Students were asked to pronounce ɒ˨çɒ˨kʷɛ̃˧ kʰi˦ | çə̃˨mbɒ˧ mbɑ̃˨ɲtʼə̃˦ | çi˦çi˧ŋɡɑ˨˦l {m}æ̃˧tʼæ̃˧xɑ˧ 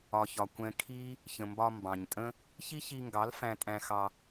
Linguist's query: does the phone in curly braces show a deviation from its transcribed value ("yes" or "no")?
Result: yes